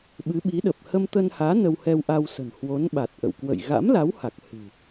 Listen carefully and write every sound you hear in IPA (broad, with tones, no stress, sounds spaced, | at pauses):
ɓ ɨ˨˦ ɓ i˨˦ ɗ ə˨˩ p̚ h ə˧ m t̪ ə˧ n h aː˨˦ n ə˧ w h ɛ˧ w ʔ a˧ w s ə̤˨˩ n h w o˨˦ n ɓ a˨˩ t̚ ʔ ə̰˧˨ w k w ə̰˧˨ j ɣ a̰˧˥ m l a˨˦ w h a˨˩ k̚ h ɨ̤˨˩